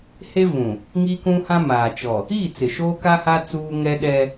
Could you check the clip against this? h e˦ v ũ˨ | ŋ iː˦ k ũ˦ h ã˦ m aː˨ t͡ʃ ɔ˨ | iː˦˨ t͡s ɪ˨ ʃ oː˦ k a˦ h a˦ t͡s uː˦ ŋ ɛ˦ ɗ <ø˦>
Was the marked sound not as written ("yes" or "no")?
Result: yes